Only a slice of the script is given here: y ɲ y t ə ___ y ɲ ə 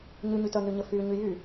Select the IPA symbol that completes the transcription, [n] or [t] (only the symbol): n